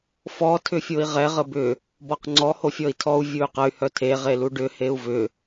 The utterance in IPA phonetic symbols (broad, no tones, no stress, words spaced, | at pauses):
fɔ tʰʏfʲoi̯ʁɛ ʁəbʏ | bɔqŋ͡ǀɔ hofʲɔi̯tʰɔu̯ vʲuy̯qəy̯ hœtʰe ʁeluɖʏ heu̯vʏ